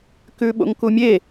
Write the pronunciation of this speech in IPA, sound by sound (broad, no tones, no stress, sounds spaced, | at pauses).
k ʉ ɓ o̰ ŋ k u mʲ e